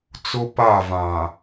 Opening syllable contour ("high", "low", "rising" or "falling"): high